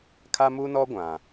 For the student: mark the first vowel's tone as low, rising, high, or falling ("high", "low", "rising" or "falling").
high